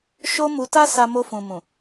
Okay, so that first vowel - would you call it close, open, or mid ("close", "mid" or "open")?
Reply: mid